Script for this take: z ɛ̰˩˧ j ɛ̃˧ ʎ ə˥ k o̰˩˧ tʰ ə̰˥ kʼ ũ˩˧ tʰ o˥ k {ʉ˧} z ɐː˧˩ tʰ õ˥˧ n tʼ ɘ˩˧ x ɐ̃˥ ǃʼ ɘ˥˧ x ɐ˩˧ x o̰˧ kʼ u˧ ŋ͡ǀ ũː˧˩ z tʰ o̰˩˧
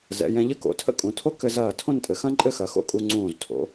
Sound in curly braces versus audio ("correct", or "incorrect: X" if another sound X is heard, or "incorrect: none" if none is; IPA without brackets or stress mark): incorrect: ɘ˧